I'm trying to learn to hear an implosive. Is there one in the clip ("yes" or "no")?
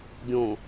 no